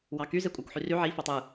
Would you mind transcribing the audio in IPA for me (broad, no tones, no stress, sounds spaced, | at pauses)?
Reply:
w ɑ k y z e kʷʼ æ kʷ ħ y r y ʕ i f o tˤ ɯ